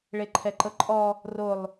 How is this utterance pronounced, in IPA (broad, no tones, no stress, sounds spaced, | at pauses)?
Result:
ɭ e ǃʰ ɛ ǃ ɤ ǃʼ ɔ | r o lˠ